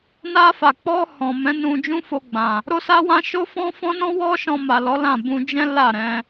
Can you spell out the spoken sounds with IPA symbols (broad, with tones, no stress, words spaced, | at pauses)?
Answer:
na˧fa˨k͡pɔ˧ hɔ̃˨ mɛ̃˨˦nũ˧ d͡ʒũ˦fo˧ɡ͡bã˨ | ɾo˦sa˦wã˦ ʃo˦fɔ̃˦fɔ̃˦nɔ̃˦ wɔ˦ʃɔ̃˧ ma˨lɔ˨˦lã˦˨ bũ˧d͡ʒɛ̃˦ la˦˨ɾɛ̃˧